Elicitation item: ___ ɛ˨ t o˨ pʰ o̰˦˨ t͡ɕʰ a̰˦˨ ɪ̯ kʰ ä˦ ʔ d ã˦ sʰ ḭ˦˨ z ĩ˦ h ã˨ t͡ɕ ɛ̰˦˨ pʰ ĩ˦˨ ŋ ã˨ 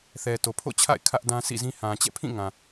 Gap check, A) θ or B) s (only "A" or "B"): A